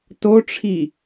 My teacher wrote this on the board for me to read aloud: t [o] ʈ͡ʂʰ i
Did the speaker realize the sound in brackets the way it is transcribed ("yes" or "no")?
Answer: yes